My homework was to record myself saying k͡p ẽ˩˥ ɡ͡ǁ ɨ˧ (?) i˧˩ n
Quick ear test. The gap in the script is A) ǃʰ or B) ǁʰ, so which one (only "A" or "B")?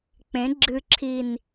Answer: B